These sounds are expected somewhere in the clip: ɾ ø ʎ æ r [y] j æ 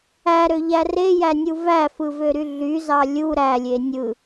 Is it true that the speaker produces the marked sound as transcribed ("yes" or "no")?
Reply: no